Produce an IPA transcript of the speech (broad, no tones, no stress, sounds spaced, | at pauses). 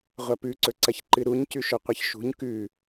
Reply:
ʁʷ ɐ p ʉ ǀ ɵ ǀ ɐ ç ǃ ɨ ɾ u ɲ c ʉ ʃ ɵ qʷ ɐ ç ʃ ṳ ɲ k ʉ